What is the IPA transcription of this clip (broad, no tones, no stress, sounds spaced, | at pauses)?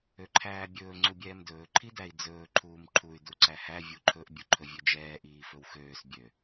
ø ǃʰ æː bʲ ɵː ŋ͡ǀ u bʲ ɛː m d ɵː ǃʰ i d æ i̯ d͡z ɵː ǃʰ uː m ǃʰ u y̯ d u ǀ æ h æ vʲ u ǃʰ ɵ ʔ bʲ u ǃʰ ɵ vʲ ø d͡ʒ ɛː ʔ iː f ɵ w x øː s bʲ ø